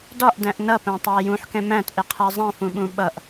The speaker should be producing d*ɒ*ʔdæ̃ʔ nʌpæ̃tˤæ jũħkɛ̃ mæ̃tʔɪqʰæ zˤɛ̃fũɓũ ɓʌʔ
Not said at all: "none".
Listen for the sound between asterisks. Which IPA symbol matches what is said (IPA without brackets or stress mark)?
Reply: ɒ